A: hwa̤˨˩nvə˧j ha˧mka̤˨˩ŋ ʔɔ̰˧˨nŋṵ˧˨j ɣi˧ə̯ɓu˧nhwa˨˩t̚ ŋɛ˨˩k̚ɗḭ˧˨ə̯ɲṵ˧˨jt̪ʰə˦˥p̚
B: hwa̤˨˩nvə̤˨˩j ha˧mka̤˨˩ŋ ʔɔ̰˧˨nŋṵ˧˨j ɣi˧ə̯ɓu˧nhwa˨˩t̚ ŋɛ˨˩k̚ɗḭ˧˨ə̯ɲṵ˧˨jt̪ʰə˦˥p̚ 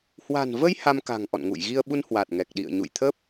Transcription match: A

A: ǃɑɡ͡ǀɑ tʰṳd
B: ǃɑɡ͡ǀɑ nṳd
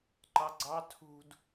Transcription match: A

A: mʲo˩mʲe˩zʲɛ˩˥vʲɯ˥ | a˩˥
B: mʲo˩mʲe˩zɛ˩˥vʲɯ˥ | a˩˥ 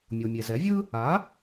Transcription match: B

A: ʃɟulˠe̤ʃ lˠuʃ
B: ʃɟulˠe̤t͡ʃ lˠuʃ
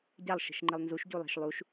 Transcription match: A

